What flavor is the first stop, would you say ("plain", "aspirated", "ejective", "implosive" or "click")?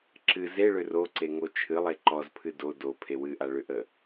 click